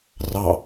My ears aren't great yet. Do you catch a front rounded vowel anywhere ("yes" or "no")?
no